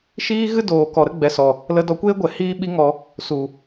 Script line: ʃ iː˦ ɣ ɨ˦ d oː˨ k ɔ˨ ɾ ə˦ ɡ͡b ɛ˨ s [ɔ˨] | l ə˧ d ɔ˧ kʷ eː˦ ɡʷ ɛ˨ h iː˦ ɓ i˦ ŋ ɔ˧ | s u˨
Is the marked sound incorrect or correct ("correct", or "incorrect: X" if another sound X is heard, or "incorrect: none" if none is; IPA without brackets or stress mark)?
correct